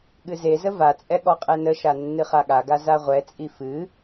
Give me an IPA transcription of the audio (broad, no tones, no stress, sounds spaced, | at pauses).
ɠ ɨ z e z ə v a t͡sʼ ɛ ɠ ɔ qʼ ɛ n ə ʃ a nː ɨ χ a ɠ a ɡ a z a ʁʷ ɛ t͡sʼ i f ɨ